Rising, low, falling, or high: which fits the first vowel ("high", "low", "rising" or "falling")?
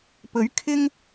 rising